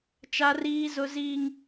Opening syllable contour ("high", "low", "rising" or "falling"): high